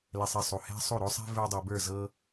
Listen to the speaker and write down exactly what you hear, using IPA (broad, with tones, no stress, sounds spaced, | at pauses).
l ɛ˧ sˤ e˧ sˤ u˨ h ɛ̤˦ sˤ u˦˨ ɾ o˦ sˤ ɛ̤˦ v ə˞˧ dˤ u˨ b ə˞˦˨ z ɤ˦